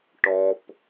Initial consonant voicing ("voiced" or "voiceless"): voiceless